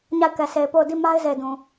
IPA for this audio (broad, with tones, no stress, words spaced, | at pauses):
ɲa˦˨ɪ̯kɛ˨sʰe˨ɪ̯po˦˨ʊ̯ di˦˨ma˦ɪ̯ ze˦˨ɪ̯dũ˨